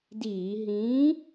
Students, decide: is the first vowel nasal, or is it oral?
oral